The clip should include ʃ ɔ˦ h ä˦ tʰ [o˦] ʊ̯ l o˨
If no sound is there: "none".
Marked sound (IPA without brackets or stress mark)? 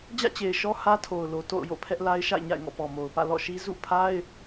o˨